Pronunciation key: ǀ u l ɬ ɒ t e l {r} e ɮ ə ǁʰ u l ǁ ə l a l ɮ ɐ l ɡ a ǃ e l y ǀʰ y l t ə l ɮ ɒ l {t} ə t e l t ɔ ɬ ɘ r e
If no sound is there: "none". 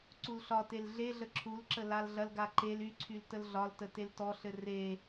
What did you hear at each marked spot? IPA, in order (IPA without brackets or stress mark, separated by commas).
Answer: ɮ, t